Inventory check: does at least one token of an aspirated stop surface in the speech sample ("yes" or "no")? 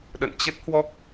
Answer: no